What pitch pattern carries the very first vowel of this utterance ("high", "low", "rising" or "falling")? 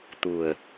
low